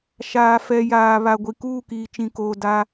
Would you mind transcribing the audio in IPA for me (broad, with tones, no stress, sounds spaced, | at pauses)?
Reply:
ʃ aː˨ f ɛ˨ j aː˨ β a˨ ɡʷ i˨ k uː˦˨ k iː˨ t͡ʃ ĩ˨ k oː˨ d a˦